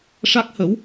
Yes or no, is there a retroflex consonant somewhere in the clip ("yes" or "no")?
yes